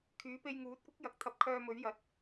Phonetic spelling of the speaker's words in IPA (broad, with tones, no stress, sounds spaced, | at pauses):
kʰ yː˨˥ p e˧ j ŋ uː˨˥ t̚ kʷ ɪ˥ k̚ j ɐ˨ k̚ t̪ʰ ɐ˧ p̚ kʰ œː˧ m ɵ˨˥ ɥ j ɐ˨˥ t̚